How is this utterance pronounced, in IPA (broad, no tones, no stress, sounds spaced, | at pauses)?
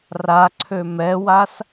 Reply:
r a ǀʰ ø m ɛ w a s